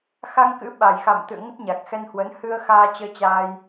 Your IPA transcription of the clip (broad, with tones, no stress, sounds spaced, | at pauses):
x a˧ ŋ k ɨ̰˧˥ ɓ a˨˩ j x a̰˧˨ m t̪ ɨ̰˧˨ ə̯ ŋ ə˦˥ t̚ ɲ a˨˩ k̚ x ɛ˧ n h w ə˨˦ n h ɨ˧ ə̯ x aː˧ t͡ɕ əː˧ t͡ɕ a˧ j